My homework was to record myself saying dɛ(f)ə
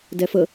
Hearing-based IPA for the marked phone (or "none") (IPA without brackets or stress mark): f